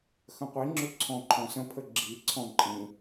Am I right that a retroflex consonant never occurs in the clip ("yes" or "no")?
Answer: yes